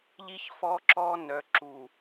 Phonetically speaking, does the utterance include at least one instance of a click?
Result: yes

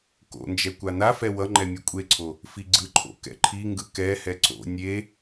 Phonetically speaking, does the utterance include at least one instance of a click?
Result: yes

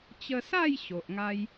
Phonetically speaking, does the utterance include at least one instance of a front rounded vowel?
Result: no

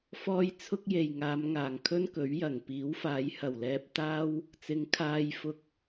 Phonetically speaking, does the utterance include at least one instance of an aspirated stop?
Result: yes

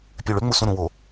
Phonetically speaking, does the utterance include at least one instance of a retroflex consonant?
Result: yes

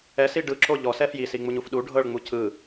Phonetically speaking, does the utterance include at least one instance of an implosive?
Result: yes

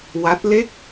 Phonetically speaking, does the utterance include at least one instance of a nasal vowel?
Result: no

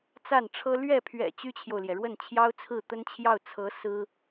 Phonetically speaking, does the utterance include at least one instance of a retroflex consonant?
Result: yes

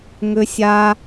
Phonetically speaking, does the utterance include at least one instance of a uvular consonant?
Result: no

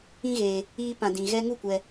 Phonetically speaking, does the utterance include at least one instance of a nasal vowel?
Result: yes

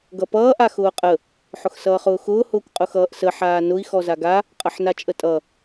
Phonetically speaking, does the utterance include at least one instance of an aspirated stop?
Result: no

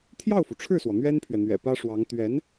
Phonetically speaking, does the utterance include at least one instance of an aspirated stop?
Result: yes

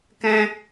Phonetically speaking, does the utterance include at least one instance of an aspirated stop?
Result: no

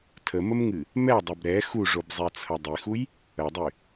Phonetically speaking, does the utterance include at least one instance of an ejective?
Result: no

